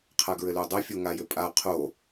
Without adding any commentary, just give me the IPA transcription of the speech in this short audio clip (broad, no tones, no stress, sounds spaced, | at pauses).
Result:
qʰ a ɡ ɹ ɘ l ø dˤ ɘ fʲ o ŋ a j ɘ pʼ a qʰ o